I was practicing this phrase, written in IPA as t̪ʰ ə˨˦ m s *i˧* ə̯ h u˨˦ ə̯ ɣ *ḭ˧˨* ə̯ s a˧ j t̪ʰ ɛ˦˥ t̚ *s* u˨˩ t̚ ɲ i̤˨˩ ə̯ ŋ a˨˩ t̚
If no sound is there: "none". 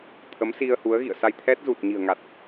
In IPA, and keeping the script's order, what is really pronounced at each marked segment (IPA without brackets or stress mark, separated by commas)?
i˧, ḭ˧˨, z